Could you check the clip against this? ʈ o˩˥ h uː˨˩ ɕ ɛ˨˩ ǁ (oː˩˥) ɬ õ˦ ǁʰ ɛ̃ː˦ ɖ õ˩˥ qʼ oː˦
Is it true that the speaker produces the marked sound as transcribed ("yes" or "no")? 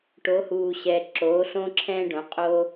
yes